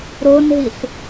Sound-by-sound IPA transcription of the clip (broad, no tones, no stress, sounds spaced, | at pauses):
ɾ o n ɦ i ɬ